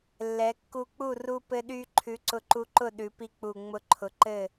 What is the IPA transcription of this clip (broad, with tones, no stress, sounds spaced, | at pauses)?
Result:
lː ɛ˩˧ kː u˧ k͡p u˥˨ r u˧ p ɘ˧ ɗ y˧ ǃʰ ʉ˨˥ ǀ ʊ˧ ǃ u˧ ǃ ʊ˥˨ ɗ ʉ˩˧ p i˧ k͡p u˨˩ ŋ͡m ʊ˧ ǃʰ ʊ˨˥ ǃ ɘ˥˨